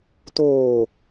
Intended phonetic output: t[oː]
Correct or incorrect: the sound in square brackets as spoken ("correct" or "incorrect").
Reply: correct